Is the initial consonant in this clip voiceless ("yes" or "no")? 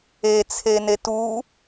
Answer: yes